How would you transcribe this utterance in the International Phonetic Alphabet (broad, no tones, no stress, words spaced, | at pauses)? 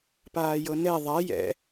paːjɤnɛ ðˤa jɛ̰